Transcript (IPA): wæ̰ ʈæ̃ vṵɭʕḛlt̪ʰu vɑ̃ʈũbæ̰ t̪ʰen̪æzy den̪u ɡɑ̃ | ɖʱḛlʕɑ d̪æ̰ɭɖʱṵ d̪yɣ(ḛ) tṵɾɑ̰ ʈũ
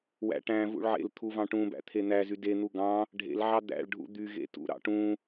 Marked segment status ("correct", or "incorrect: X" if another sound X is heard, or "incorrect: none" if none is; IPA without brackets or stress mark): correct